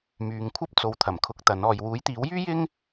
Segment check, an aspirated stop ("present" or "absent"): present